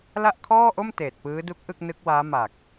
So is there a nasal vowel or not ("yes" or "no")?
no